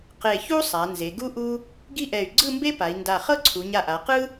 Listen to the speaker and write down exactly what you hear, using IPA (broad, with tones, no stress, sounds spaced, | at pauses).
q e˧˩ ç u˥ sˤ a˩˧ n z e˩˧ ɡ u˥ ʔ u˥ | ɡ i˥ ʔ ɛ˧˩ y̯ ɡ͡ǀ ɯ˥˧ m b e˥ p a˩˧ i̯ n d a˧˩ χ ɤ˥˧ ǀʰ u˩˧ ɲ a˧˩ ʔ a˩˧ q ɯ˥